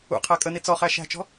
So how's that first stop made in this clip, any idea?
aspirated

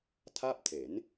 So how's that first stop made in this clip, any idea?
aspirated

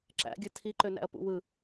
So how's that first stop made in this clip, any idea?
click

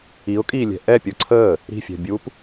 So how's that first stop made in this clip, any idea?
ejective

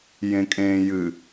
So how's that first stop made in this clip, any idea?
ejective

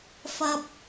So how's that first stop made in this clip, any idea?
plain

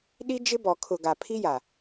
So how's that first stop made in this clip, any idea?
implosive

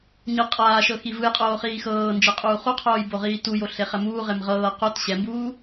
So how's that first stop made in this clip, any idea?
ejective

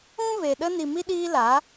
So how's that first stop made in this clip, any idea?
implosive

